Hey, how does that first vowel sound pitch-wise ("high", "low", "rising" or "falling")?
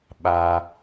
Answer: low